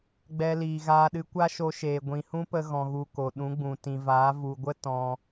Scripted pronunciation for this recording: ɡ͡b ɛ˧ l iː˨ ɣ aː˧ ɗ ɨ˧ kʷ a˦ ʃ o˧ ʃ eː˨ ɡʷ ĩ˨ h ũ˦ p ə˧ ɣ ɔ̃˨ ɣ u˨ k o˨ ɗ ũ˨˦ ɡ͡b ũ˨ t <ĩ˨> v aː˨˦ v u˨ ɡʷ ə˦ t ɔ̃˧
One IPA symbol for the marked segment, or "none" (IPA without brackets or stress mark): ĩ˨